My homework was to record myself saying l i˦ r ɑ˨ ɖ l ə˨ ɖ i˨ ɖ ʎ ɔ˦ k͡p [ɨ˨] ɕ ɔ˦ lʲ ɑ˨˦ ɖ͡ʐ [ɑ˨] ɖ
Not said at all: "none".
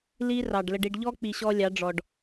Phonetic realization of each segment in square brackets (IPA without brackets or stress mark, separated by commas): i˨, ɔ˨